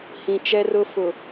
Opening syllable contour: low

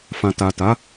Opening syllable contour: low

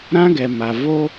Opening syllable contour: high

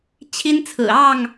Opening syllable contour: high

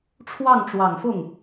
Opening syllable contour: falling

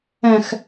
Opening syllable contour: low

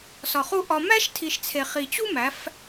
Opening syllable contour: low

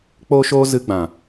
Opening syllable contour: high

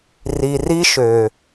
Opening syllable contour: low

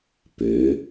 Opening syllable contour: rising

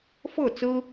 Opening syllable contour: falling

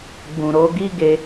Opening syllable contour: low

